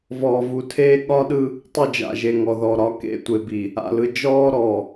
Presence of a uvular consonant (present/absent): absent